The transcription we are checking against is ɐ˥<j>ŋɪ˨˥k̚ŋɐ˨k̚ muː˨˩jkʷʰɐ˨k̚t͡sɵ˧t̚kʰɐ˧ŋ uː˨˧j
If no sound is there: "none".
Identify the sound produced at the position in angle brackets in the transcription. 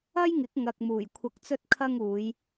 j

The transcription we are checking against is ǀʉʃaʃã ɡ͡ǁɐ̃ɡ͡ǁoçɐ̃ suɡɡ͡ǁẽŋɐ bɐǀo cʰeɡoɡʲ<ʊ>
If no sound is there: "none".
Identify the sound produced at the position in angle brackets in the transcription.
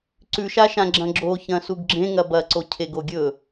ɵ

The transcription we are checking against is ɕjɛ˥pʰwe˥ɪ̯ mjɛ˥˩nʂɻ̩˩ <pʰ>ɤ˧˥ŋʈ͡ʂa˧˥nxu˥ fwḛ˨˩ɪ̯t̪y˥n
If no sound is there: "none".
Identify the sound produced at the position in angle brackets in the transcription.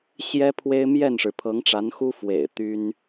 pʰ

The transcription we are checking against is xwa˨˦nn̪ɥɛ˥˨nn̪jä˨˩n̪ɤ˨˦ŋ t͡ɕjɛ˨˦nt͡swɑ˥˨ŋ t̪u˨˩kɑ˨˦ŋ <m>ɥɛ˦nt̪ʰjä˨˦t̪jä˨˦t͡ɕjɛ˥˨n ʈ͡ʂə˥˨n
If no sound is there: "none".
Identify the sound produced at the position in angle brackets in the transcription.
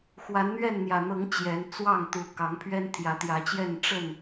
pʰ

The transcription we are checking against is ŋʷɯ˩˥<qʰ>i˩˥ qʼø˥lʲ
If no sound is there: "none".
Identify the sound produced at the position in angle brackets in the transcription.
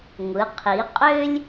qʰ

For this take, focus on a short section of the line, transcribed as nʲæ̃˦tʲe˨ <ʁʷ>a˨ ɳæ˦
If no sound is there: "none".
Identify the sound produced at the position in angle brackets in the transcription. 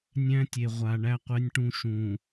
ʁʷ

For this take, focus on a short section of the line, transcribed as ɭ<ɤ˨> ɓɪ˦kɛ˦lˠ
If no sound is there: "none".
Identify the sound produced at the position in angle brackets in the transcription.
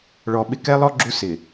ɔ˨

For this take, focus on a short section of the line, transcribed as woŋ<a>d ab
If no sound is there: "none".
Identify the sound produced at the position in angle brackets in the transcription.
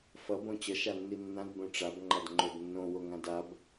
ã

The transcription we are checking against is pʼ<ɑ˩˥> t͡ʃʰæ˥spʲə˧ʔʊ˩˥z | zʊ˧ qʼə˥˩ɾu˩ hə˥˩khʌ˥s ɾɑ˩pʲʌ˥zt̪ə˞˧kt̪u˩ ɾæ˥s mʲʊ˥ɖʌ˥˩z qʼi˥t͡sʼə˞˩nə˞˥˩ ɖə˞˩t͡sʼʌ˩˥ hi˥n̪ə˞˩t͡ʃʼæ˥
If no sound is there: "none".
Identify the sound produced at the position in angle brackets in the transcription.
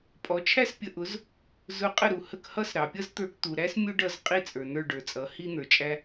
ɔ˩˥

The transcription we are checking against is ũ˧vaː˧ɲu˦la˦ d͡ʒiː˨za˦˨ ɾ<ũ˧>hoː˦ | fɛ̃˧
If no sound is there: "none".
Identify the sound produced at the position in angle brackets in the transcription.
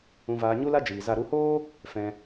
u˧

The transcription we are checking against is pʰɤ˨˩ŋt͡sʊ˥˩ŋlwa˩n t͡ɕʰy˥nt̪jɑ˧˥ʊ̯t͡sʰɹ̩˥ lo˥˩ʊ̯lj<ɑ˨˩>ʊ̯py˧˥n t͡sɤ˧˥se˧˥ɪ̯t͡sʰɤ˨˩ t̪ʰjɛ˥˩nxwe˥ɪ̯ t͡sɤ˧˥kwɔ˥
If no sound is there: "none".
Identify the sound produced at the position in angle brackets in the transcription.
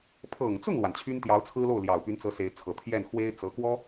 ɑ˨˩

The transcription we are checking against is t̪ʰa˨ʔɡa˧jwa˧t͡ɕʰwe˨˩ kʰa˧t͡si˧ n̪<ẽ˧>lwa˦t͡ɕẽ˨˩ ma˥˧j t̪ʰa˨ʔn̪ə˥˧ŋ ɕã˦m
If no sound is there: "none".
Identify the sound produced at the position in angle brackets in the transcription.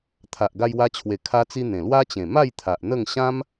ẽ˨˩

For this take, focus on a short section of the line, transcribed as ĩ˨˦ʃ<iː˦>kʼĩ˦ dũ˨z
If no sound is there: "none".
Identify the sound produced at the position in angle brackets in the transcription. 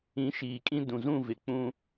iː˨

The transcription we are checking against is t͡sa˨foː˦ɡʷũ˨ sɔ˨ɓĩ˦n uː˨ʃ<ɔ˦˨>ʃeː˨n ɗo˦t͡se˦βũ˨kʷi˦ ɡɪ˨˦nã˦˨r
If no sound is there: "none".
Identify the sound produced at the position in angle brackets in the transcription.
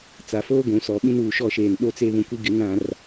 ɔ˦˨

